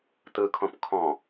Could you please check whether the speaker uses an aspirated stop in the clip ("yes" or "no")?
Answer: yes